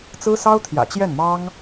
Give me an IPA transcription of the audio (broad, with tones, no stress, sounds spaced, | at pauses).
t͡s ɹ̩˥ s ɑ˥ ʊ̯ t̪ʰ j ä̰˨˩ t͡ɕ j ɛ˥˩ n m ɑ˥ ŋ